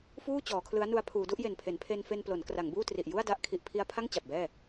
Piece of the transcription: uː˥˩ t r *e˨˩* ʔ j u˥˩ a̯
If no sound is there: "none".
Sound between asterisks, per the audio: i˨˩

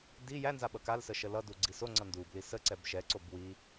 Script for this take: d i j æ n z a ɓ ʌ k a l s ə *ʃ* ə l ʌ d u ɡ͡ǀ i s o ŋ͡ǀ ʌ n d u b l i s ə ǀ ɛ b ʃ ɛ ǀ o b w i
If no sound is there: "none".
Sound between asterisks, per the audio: ʃ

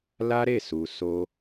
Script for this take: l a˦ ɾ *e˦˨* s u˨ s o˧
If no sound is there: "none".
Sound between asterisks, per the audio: e˦˨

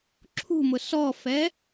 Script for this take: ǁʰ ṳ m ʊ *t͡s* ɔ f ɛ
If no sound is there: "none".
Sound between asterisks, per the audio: s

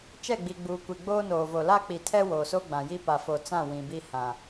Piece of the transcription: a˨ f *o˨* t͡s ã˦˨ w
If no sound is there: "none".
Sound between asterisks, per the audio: o˨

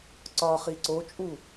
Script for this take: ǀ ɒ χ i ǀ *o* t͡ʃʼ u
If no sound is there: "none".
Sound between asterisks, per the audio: o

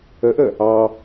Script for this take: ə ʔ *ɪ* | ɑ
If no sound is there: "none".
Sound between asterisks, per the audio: ə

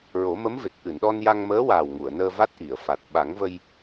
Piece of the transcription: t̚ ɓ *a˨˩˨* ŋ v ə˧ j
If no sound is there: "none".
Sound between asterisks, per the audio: a˨˩˦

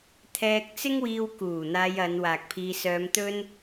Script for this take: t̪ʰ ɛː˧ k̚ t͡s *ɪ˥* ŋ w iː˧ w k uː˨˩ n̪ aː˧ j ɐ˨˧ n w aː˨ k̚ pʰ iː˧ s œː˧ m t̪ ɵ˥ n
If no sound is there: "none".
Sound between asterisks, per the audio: ɪ˥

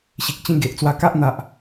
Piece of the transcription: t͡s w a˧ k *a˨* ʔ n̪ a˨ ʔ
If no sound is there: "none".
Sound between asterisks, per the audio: a˦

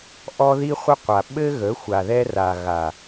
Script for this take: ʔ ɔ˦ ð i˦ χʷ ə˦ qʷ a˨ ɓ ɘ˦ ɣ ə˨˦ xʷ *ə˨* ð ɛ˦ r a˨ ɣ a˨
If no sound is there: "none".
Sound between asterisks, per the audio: a˨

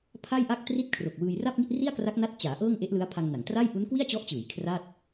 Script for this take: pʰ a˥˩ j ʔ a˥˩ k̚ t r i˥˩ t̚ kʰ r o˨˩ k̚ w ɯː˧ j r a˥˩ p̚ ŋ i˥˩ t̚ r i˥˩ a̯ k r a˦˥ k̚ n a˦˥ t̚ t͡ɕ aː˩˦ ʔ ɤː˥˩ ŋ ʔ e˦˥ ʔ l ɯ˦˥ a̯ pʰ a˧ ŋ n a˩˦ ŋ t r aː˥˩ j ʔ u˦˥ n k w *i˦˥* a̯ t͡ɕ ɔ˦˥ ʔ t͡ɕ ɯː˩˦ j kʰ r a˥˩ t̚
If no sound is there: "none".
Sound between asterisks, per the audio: i˥˩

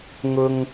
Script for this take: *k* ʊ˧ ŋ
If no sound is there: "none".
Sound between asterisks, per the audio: ŋ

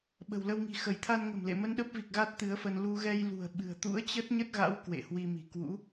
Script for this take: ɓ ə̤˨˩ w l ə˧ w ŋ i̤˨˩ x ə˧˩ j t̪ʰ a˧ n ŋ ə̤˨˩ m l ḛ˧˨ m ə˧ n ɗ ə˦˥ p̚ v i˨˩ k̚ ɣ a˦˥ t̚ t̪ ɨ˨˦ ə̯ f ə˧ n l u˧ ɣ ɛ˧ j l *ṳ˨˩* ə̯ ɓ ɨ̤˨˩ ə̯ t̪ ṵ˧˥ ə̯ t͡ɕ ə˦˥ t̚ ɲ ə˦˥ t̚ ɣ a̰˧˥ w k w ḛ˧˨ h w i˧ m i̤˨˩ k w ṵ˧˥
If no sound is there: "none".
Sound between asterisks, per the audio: ṳ˨˩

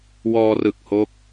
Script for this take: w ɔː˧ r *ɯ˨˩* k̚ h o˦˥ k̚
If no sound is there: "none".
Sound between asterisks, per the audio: ɯ˨˩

